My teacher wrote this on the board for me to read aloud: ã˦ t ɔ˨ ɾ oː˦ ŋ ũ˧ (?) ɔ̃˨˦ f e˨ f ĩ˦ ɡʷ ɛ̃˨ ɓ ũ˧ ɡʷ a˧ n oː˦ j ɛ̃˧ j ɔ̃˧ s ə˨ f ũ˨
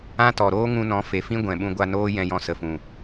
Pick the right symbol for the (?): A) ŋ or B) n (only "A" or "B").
B